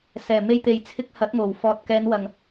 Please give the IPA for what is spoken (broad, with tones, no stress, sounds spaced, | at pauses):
s ɛː˨˩ m e˧ j t̪ e˨ j t͡sʰ ɪ˧ k̚ h ɐ˨˥ t̚ ŋ o˨˩ w f ɔː˨ t̚ k ɛː˨˧ n w ɐ˨ ŋ